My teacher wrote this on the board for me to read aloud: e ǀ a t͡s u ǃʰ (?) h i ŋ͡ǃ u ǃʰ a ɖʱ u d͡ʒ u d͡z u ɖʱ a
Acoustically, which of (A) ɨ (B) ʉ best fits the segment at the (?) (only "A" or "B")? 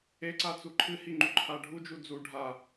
A